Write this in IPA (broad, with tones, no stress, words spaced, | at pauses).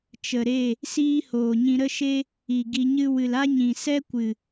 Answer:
t͡ʃə˨ɾe˦˨ | siː˦hoː˨ɲĩ˧ ɾə˦ʃe˦ | i˨ ɡi˧ɲɨ˦ wɨ˨la˦ɲĩ˨ sɛ˦kʷɨ˨